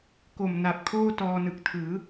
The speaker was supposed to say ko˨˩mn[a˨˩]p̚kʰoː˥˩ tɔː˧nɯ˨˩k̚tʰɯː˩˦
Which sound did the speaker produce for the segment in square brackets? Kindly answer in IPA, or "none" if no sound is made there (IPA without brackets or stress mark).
a˨˩